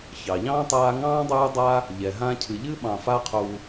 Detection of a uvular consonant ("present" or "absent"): present